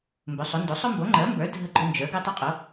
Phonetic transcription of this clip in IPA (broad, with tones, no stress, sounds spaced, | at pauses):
m b ɵ˩˥ sˤ o˩˥ n d o˩˥ sˤ ʊ˦ m b o˩˥ ŋ͡ǃ ɜ˩˥ m b ə˞˩˥ dʱ ə˦ ɡ͡ǃ ʊ˦ n d͡ʒ ə˞˩˥ ɡ u˦ tˤ ə˞˦ qʼ o˩˥